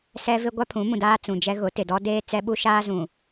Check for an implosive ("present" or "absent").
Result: present